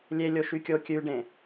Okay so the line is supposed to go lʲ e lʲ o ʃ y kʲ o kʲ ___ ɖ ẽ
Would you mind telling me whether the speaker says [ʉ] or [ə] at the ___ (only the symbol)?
ʉ